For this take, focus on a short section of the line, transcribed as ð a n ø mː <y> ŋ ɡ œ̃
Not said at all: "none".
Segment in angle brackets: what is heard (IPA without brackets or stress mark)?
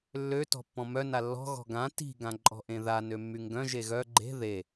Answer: y